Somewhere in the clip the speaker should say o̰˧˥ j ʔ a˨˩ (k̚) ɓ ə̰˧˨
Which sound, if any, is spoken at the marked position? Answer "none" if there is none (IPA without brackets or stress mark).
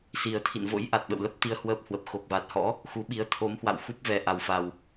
t̚